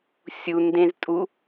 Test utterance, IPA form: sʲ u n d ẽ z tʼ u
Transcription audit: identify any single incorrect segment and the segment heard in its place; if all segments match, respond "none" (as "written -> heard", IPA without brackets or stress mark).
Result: none